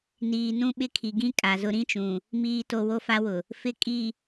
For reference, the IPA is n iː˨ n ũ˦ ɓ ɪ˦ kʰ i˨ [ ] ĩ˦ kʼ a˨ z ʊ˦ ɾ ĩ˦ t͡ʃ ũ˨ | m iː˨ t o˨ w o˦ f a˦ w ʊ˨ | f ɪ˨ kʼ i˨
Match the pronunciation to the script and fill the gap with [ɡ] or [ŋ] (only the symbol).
ɡ